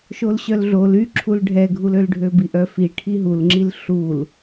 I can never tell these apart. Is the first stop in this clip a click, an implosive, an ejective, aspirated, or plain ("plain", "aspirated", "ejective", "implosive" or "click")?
click